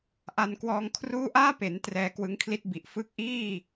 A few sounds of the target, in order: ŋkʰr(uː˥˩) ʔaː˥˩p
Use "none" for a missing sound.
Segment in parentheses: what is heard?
uː˥˩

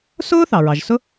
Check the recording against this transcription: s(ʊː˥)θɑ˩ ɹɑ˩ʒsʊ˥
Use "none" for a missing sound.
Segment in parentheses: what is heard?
ʊː˥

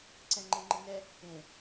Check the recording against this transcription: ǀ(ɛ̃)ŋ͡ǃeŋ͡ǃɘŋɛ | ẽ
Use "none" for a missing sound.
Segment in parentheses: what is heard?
ɛ̃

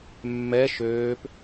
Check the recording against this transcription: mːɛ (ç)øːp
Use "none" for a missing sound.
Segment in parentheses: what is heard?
ʃ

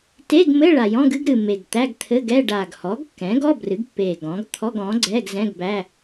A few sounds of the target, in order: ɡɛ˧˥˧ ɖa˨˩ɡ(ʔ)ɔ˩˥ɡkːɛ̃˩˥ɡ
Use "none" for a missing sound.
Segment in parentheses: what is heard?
h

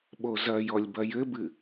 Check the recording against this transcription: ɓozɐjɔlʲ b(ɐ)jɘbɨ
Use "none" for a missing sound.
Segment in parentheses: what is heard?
ɐ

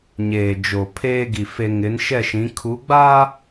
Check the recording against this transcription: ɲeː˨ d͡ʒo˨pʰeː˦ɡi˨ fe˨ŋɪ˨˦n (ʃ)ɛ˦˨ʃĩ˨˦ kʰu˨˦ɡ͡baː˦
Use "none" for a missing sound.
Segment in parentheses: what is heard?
ʃ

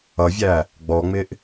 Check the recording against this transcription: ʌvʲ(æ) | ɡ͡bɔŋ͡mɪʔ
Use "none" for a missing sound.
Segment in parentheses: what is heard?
æ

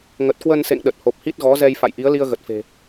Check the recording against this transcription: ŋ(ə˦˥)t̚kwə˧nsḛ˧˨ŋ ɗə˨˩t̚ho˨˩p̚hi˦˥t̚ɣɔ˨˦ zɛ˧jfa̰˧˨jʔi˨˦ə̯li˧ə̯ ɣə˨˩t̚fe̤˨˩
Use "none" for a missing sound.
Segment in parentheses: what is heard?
ə˨˩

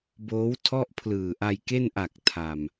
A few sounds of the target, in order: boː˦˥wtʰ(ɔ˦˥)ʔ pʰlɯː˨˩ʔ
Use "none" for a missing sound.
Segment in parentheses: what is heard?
ɔ˥˩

